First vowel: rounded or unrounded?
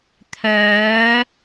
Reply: rounded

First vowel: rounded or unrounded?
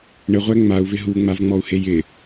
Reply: unrounded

